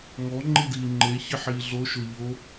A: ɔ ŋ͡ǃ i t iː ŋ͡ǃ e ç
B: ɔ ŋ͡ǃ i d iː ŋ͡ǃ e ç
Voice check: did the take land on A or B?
B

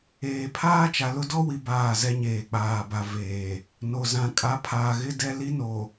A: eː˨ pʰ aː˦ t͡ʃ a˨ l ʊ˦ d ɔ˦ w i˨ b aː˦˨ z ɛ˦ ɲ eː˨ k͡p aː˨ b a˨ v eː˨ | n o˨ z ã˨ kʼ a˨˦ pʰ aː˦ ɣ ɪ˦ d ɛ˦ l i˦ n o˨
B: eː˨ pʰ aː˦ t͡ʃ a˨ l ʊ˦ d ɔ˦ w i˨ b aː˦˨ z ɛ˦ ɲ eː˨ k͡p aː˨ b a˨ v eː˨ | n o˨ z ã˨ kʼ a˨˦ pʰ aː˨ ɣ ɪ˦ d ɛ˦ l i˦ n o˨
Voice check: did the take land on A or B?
B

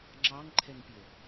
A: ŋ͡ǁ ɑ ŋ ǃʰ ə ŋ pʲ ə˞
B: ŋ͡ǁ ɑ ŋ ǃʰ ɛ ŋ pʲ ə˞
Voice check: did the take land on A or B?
B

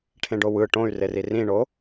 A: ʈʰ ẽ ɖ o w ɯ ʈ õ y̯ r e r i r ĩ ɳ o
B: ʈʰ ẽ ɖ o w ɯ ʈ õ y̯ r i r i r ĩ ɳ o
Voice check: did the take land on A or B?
A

